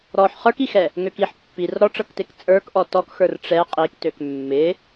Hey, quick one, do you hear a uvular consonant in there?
yes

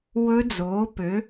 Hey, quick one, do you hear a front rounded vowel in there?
yes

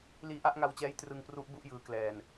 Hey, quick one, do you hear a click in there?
no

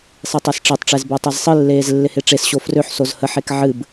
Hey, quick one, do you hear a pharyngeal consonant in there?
yes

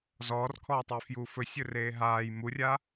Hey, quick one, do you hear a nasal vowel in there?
no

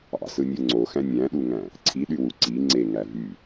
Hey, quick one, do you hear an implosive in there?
yes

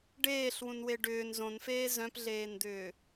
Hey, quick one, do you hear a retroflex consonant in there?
yes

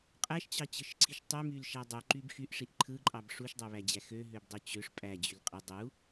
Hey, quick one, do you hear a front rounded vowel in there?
yes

